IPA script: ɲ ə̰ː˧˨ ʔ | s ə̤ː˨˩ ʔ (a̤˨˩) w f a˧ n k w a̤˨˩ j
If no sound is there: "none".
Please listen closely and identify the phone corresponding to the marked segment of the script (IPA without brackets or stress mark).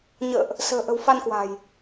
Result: ə̤˨˩